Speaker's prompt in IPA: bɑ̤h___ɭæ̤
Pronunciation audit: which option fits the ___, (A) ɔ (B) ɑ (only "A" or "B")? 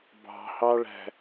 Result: B